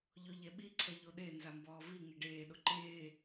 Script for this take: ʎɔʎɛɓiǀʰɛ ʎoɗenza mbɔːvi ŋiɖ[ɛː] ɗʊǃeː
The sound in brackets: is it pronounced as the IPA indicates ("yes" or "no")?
no